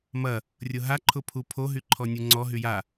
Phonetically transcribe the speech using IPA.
m ɐ | rʲ ʊ ɦ a ǃʰ ʊ pʰ u pʰ o ɦ y ǃʰ ɔ nʲ u ŋ͡ǀ ɔ ɦ y j a

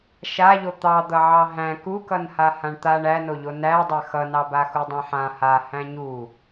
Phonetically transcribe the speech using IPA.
ʃ a ʎ o t̪ ɑ d̪ ʌ ʕ ɑ ɦ æ̃ k u k ʌ n h a h ã ɳ t̪ a ɳ æ n o ʎ o n æ dˤ a x ʌ n ɑ b a x u dˤ ã ħ ã h a h æ̃ ɲ u

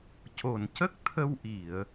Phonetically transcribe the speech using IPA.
c o˨˩ n c ə˦˥ k̚ t̪ʰ ə˧ w ʔ i˨˩˨ ə̯

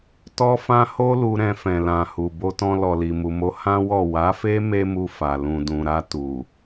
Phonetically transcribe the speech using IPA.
t ɔ˦ f ã˦ h o˦ l u˧ ɾ ɛ̃˧ f ɛ̃˨ l ã˨ h u˨ b o˧ t ɔ̃˧ l ɔ˨ l i˨ m u˨ m o˨˦ h ã˦ w ɔ˦˨ w a˨˦ f e˦ m e˦ m u˧ f a˨ l ũ˨ d ũ˨ ɾ a˧ t u˨

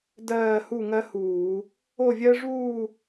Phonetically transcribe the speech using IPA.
d ɜː˥˧ h u˥˧ ŋ ɜ˥ h uː˧˩˧ | o˥˧ vʲ ɜ˥ ʐ uː˥˧

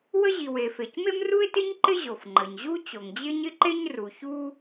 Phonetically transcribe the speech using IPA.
w ə˥ ʑ i˩ w e˩ f e˩ c m e˥ m r u˥ ɪ̯ t ɪ˥ ɲ ǃ ɪ˥ ʑ o˩ f ŋ͡ǃ ə˩ ɲ ʑ u˥ t͡ɕ o˩ ŋ d͡ʑ ɪ˥ ɲ ɪ˥ ǃ e˥ ɲ r u˩ ç u˥

